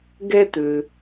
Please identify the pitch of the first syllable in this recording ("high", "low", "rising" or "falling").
high